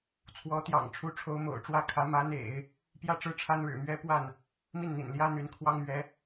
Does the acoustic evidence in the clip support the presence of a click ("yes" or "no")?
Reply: no